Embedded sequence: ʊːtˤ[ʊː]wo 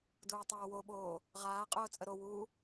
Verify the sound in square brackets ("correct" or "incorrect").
correct